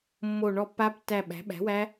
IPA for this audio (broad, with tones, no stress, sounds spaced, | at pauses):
mː o˦˨ ɳ ɔ˦˨ pː a˦˥ b tː æ˦˨ ɓ æ̤˩˥ ɓ æ̤˩˥ w æ˦˥